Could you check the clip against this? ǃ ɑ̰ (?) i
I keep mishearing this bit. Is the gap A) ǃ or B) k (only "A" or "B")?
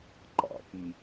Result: B